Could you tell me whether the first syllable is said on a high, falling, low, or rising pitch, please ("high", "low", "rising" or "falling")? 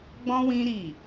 high